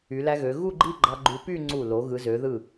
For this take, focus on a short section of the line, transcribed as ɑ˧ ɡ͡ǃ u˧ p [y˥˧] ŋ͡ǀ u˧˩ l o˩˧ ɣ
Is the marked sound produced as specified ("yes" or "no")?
yes